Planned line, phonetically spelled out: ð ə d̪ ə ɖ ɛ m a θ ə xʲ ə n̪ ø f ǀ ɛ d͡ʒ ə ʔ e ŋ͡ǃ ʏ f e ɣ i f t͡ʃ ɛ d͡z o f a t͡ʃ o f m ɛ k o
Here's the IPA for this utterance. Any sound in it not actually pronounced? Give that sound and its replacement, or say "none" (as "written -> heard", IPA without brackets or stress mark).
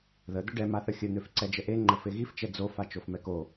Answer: ʏ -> ə